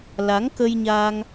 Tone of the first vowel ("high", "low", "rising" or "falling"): rising